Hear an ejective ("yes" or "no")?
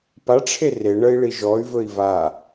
no